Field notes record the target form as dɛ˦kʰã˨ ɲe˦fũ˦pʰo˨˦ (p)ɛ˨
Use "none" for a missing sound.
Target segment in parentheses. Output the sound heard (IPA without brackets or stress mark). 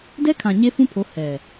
h